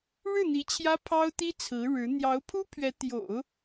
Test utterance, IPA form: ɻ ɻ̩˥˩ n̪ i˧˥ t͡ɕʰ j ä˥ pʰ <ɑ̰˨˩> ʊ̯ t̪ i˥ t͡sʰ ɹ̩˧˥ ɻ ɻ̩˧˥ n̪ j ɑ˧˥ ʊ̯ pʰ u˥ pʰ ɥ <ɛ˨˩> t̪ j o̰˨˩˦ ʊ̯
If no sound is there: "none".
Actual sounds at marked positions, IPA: ɑ˥, ɛ˧˥

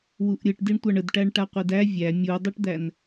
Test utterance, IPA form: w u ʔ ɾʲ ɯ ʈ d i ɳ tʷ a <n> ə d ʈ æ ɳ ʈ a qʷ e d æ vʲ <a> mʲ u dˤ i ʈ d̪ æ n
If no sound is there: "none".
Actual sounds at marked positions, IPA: ɳ, æ

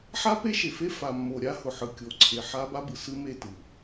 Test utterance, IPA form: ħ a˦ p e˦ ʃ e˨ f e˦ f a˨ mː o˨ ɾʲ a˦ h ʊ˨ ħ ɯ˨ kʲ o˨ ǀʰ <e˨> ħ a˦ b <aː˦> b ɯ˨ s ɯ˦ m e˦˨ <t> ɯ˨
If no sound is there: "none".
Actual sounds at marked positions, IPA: e˨, a˦, t

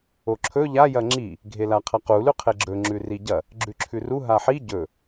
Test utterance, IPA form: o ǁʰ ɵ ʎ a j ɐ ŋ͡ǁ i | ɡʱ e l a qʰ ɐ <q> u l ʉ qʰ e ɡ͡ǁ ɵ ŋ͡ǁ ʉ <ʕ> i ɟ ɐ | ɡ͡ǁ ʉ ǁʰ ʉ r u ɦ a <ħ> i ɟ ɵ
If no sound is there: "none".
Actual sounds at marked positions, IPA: q, r, ħ

